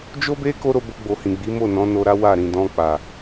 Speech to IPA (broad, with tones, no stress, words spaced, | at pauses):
d͡ʒo˦be˦ ko˦ɾo˧bo˧ɡ͡bo˨ hĩ˨ɡ͡bi˨˦ mo˦˨nɔ̃˨˦no˧ɾa˦ wa˦˨ɾĩ˨ dɔ̃˧k͡pa˨